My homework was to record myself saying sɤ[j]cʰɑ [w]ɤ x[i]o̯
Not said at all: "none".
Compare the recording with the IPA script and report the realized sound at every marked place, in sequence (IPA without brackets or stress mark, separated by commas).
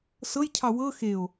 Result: j, w, e